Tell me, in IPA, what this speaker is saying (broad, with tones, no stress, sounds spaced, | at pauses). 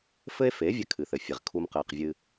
f ɘ˦ e̯ f e˨˦ vʲ ɘ˦ kʰ ɨ˨ θ ɘ˨ fʲ e˨ ʁ kʰ u˧ m q ɘː˨ q vʲ ɨ˧